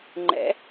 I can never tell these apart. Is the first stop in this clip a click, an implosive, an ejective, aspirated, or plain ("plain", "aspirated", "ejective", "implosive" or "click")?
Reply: click